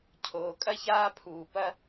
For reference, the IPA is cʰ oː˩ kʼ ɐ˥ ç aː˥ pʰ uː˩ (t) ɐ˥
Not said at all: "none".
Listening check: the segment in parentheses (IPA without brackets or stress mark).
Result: p